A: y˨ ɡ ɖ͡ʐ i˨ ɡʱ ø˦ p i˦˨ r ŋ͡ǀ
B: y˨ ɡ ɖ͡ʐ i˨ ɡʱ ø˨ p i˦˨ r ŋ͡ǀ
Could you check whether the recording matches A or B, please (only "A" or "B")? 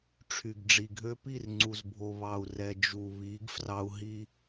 A